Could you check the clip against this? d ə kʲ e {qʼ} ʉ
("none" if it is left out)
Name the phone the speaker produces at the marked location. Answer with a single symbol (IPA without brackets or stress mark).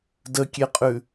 qʼ